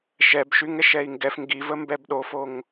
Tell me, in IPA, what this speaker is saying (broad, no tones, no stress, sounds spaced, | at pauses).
ʃ ɛ b ʃ y ŋ ɛ ʃ ɛ i̯ ŋ ɡ ɛ f ŋ ɡ i v ə m b ɛ b ɗ o f o ŋ